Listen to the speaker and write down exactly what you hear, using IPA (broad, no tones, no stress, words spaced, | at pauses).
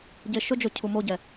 ɟeʃɵd͡ʒɵ cʰumoɟɛ